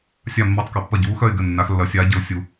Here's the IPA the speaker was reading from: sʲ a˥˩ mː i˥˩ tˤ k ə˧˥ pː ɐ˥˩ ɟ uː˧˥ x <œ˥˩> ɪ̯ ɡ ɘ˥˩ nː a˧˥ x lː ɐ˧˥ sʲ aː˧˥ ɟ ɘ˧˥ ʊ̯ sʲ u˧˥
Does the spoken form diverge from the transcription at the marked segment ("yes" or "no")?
no